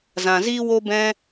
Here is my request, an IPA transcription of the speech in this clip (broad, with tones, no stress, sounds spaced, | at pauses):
z ã˨ z iː˦ w o˦ b ɛ̃˦